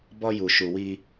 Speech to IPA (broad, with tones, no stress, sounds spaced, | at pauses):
b ɔ˦ j u˨ ʃ u˨ w iː˦